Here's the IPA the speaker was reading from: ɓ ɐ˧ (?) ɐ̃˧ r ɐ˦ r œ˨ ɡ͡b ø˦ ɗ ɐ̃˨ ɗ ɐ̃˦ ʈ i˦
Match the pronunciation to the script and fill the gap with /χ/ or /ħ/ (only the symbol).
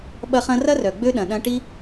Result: χ